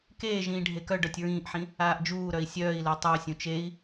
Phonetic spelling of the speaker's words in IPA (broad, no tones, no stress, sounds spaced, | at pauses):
k eː ʒ ĩː ɖʱ e k œ ɖ œ tʲ ɹ ĩː ʔ ħ ĩ | aː ʔ d͡ʒ uː ɾ œ i̯ sʲ œː i̯ l œ tˤ u y̯ sʲ ũ t͡ʃ e i̯